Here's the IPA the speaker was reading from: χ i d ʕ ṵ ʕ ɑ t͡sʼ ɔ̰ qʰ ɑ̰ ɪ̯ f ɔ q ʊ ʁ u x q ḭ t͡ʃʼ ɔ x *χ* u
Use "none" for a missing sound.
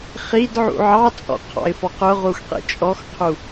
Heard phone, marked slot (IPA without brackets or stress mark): qʰ